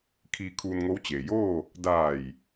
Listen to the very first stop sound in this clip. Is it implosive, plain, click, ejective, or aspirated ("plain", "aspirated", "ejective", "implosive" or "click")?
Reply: aspirated